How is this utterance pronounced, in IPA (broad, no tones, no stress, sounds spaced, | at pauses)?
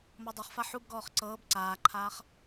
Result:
m ɤ dˤ ɛ χ f a ħ u b ɡ ɔː χ ǀ ɤː b ǀ aː ǃʰ aː χ